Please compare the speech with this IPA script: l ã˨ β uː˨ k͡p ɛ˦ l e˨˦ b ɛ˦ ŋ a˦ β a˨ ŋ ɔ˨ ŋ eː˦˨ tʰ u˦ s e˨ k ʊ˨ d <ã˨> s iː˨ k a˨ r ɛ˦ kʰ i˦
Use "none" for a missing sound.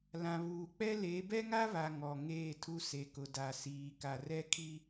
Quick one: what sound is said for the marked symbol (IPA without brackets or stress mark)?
a˨